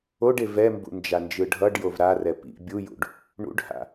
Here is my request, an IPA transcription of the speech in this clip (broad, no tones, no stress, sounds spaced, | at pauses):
o ɖ e v ɛ m b ṵ n d͡ʒ a n d͡ʒ ɯ ɖʱ ʌ ɖ j o v ɾ a r ɛ p ḭ bʲ u j ṵ ɖ | ɳ ṵ ɖ h a̰